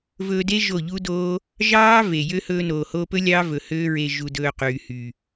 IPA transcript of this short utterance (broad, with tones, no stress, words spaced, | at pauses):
vɵː˧de˦ ʒo˦˨ʎu˦doː˦ | ʒɑː˦ ve˨jø˦ hɵː˧noː˨hoː˧pɵ˦ lʲɑ˦vɵ˨ høː˦ɹe˧ ʒu˨dɵː˨ qyː˨hy˨